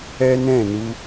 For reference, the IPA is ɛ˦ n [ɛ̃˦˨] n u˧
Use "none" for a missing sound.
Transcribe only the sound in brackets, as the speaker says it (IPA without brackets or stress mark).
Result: ɛ̃˦˨